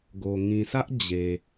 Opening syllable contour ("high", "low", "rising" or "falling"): low